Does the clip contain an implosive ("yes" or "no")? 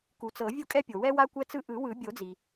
no